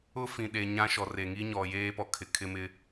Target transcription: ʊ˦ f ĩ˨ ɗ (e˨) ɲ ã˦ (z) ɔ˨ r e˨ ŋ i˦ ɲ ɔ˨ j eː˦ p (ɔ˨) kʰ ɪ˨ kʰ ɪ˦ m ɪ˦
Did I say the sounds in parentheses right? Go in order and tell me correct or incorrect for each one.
correct, incorrect: ʃ, correct

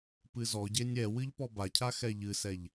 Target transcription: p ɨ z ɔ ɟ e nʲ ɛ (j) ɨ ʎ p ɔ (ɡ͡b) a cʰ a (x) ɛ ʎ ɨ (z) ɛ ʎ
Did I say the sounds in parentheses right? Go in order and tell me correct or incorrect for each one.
incorrect: w, incorrect: b, correct, incorrect: s

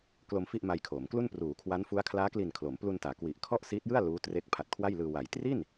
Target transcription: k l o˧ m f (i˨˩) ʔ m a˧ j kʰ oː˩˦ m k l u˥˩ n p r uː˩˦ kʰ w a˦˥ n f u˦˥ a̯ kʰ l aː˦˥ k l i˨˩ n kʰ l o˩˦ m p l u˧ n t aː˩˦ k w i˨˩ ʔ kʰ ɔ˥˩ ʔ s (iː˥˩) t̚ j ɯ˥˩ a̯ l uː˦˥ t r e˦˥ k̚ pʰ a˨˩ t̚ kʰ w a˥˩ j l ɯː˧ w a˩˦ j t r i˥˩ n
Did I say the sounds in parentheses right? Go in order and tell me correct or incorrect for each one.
incorrect: i˥˩, incorrect: iː˦˥

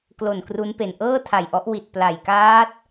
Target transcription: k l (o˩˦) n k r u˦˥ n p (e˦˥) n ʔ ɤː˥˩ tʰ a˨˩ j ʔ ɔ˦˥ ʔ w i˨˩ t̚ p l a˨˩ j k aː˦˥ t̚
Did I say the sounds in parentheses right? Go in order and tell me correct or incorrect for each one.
incorrect: o˨˩, incorrect: e˨˩

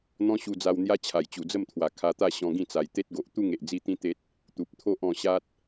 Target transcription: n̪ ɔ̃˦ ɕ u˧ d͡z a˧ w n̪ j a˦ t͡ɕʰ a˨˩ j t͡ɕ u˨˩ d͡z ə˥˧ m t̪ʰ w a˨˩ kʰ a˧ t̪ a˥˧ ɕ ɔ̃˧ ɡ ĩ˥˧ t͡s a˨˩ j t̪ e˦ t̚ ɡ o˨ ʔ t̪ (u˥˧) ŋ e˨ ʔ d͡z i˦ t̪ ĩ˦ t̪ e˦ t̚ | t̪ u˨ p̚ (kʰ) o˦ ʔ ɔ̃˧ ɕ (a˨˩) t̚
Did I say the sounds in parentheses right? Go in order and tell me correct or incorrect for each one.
correct, incorrect: t̪ʰ, incorrect: a˦

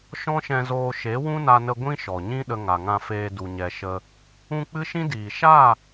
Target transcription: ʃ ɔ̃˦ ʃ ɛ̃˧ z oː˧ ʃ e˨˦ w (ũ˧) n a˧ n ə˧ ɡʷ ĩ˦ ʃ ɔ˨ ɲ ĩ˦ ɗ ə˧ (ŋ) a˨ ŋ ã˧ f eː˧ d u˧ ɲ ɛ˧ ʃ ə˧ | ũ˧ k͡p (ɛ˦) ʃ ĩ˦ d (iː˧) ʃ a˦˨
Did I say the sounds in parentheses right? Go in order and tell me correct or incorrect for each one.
incorrect: ũ˦, correct, incorrect: ɨ˦, incorrect: iː˨

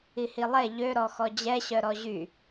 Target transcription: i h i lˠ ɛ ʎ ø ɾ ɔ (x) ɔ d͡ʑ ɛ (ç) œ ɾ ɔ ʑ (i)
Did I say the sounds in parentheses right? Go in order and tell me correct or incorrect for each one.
correct, incorrect: ɕ, incorrect: y

